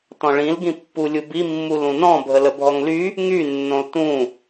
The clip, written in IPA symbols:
t ɔ̃ ɭ ĩ l ɡ ĩ pː u lʲ u b i mː u l ũ n ɔ̃ bʱ ə l ə bʱ ɔ ŋ l y | ŋ y nː õ l t ũ

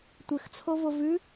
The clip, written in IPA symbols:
tʷ ɘ x t͡sʰ o v o v ʉ

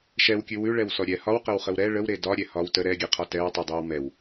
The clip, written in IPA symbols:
ʃ ɛ w kʲ ʉ w ʉ ɭ ɛ w s ɔ ɾʲ ɛ h ɒ w q ə w χ ə w ɾ ɛ ɭ ə w ɾ e d ɒ ɾʲ ɛ h ɒ w t ə ɾ ɛ ɡʲ ɛ qʰ ɒ t ɛ w tˤ y dˤ e w m ɛ w

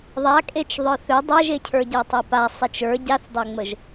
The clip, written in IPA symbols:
ðˤ a kʼ e t͡ʃ ðˤ ə˞ θ ø dˤ æ ʒ e cʰ ə˞ ɟ æ tˤ æ p a sˤ e t͡ʃ ə˞ ɟ a θ dˤ æ ŋ͡m ə ʒ

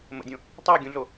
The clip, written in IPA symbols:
m ə̰ dʲ õ | tˤ æ ɡʲ ũ ɮ o

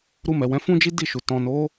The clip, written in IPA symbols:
ɾ u˧ m ɛ˨ w ɛ̃˨˦ f ũ˦ d͡ʒ i˦ d i˦˨ ʃ u˨ t ɔ̃˨ n o˨˦

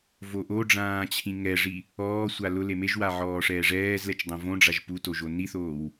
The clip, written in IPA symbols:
v o ʔ o ɖ͡ʐ ãː t͡ɕʰ ĩ ŋ ɛ ʐ i | ɔː sʷ a l ʊ l e m e ʒ w a ʕ ɔː ʂ ɛː ʐ ɛː z l ɛ t͡ʃ dˤ õ v õ ɖ͡ʐ a ʒ p u t o ʒ o n i θ oː w

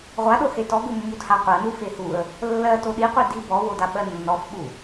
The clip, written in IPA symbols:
ʁʷ a ɗ o h e t ɔ ɡ u mː u d h a qʷ ɜ n u f e h u ə̯ | lː ɜ t o ɗ i qʷ e d i b ɔ w o d a ɓ ɜ nː ɔ f ɓ u

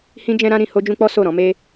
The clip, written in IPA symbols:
h ĩ˦ d͡ʒ ɛ̃˦ ɾ ã˦ ɾ ĩ˧ h o˦ d͡ʒ ũ˦ k͡p ɔ˦ s o˦˨ ɾ ɔ̃˨˦ m e˦

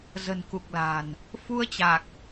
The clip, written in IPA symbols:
z ə̤˨˩ n k u˨˩ k̚ l a̤˨˩ n | f u˧ ə̯ t͡ɕ a˨˩ k̚

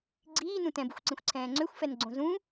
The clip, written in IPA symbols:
ɡ͡ǀ iː n ũ t ɛ̃ b u xʷ ǀ ĩ xʷ ǀʰ ɛ̃ː ŋ͡ǀ ø xʷ f ɛ n ɡ͡ǀ õ z ũ

